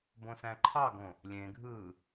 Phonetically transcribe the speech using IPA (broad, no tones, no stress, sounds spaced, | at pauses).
b õ s æ̃ ǃʰ ɑ ɡ õ | lʲ ẽ ɡʱ ɯː